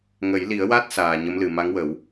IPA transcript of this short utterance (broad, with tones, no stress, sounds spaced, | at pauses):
ŋ ə˨˩˦ j l i˨˩˦ ə̯ w a˦˥ t̚ s aː˨˩ ɲ ə˧˥ m l ɨ˨˩ m a˧˥ ŋ w ə˨˩˦ w